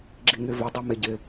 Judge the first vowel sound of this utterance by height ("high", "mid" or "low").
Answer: high